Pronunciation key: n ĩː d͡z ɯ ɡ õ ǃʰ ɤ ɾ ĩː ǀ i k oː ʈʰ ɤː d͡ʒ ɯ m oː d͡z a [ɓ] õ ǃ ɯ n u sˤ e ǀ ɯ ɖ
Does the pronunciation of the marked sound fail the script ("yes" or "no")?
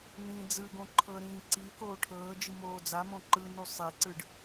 yes